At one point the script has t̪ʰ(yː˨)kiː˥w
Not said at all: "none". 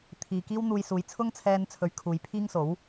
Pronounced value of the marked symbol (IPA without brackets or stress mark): iː˨